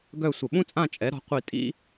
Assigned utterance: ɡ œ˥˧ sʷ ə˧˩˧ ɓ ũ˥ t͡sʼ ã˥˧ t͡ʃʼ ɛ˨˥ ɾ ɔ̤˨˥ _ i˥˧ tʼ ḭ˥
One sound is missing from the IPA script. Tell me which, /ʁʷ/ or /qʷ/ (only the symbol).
qʷ